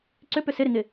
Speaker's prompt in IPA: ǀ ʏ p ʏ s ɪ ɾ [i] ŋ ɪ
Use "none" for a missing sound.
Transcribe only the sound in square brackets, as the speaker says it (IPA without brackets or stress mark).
ɪ